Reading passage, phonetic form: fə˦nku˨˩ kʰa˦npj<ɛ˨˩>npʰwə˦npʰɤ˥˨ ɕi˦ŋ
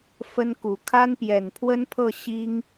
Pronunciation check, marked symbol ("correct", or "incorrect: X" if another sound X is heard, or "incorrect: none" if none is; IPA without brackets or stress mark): correct